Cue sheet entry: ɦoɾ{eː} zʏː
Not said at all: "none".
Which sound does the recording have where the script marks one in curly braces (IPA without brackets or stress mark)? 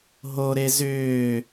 e